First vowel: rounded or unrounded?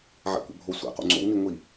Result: unrounded